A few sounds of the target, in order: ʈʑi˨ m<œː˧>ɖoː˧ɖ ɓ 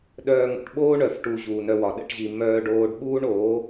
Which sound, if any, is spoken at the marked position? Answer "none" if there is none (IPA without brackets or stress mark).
œː˧